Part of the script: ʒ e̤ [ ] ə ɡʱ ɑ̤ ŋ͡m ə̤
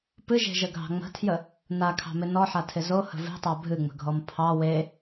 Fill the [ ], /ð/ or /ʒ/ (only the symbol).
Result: ʒ